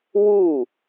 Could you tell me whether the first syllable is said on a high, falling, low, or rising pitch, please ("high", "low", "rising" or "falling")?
falling